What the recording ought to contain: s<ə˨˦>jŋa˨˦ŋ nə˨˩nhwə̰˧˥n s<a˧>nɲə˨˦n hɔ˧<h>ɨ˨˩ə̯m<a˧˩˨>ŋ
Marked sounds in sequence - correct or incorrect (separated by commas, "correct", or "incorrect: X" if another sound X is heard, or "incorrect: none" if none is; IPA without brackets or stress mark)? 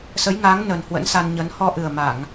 correct, correct, incorrect: ʔ, correct